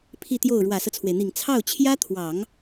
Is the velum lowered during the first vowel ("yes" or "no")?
no